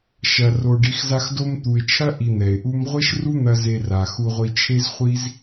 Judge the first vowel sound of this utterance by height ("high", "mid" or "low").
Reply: low